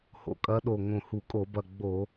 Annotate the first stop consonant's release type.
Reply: ejective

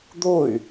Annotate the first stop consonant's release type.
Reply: plain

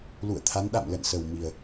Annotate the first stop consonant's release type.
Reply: aspirated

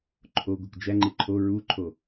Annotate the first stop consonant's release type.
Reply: click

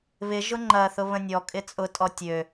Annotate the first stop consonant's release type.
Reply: click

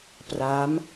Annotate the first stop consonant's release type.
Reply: plain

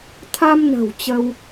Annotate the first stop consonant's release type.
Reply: aspirated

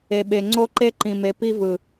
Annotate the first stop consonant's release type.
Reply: implosive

